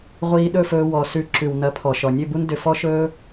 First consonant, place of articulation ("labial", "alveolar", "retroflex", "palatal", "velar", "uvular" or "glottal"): uvular